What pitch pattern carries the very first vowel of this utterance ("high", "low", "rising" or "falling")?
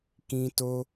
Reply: high